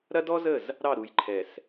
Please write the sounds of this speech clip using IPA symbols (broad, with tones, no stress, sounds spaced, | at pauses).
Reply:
ɾ ɐ˦ d ɔ˦ z ə˦˨ z | ɾ ɑ˦˨ ɾ u˨ j ǃʰ ɛ˨ s